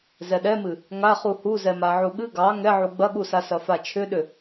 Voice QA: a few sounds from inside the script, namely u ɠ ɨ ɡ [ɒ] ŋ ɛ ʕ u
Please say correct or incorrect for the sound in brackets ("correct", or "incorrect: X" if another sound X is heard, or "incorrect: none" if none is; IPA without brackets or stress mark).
incorrect: ɑ